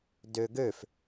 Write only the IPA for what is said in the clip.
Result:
døɡøf

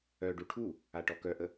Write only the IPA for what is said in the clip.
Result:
œɖu ʈʰu | aʈɔkœʔə

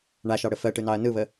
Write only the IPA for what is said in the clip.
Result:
ɳaʃɑɽə fɜʈɯnɑɐ̯ nɯβə

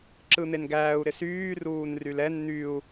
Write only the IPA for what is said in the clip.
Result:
ǁɯn̪enɡæːu̯ ɾɪsyː ruːnrylɛn n̪yu̯

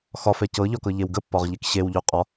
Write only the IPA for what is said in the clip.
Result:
xɒfɛ cɤʎɒkɤʎew ɡəpːɒʁʎek ɕewʎʉ qʼɒ

